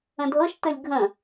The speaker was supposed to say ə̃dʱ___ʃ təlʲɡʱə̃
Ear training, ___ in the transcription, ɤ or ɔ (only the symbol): ɤ